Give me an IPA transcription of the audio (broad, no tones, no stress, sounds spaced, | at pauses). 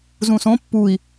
z ũ s õ pː u i̯